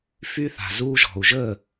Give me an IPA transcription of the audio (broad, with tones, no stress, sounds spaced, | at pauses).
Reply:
f y˧ θ a̤˨ z uː˧ ʒ ɔ̤˨ u̯ ʒ ə˦˨